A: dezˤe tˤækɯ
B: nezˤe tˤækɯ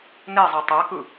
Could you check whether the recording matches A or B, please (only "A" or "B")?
B